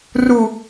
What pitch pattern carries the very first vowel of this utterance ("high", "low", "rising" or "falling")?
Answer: low